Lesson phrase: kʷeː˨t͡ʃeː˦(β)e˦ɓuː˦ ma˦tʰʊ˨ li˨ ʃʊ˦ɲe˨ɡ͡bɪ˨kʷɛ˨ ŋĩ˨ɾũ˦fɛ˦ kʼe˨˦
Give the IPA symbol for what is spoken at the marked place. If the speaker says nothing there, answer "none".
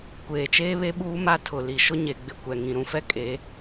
β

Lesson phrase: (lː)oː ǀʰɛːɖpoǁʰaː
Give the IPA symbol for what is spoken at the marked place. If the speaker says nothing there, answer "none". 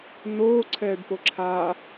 n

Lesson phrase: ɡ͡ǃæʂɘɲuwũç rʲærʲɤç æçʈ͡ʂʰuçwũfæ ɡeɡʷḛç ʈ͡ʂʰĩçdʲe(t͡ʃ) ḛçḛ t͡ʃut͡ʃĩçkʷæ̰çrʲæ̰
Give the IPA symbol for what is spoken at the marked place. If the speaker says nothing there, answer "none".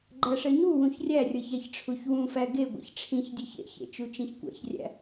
ç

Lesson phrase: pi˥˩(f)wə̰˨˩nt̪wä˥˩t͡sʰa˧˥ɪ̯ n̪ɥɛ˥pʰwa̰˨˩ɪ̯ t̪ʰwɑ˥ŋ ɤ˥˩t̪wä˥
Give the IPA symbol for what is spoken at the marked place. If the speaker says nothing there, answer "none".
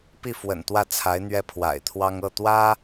f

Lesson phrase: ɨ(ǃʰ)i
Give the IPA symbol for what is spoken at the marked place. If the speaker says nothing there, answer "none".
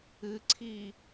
ǀʰ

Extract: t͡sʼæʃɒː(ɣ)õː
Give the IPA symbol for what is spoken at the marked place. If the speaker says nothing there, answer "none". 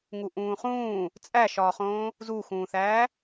χ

